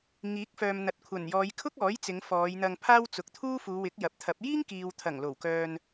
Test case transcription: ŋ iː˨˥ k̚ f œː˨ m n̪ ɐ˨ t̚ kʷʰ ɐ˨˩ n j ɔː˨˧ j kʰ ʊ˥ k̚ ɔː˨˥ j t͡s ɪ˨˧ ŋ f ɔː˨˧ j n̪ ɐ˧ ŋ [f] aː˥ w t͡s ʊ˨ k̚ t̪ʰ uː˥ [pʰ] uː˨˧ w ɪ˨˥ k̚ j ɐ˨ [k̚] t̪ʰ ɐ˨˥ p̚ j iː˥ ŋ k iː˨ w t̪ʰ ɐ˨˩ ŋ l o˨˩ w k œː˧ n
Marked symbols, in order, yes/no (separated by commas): no, no, no